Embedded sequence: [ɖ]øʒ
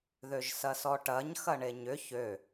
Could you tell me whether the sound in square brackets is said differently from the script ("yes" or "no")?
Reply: yes